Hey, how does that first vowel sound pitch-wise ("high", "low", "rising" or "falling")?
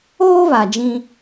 high